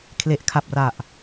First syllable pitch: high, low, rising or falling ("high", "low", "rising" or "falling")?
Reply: low